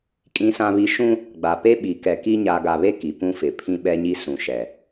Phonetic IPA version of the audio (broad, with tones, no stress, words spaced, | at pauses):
kʼĩ˦sã˦βi˦ ʃũ˦ | ɡ͡ba˨pe˦ ɓi˨kɛ˨ki˦ ɲa˨ɡa˨βe˦ ki˨pũ˦fɪ˨pʰĩ˦ ɓɛ˦ɲi˦ sũ˨ʃɛ˨